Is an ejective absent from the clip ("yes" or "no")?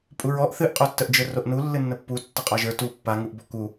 no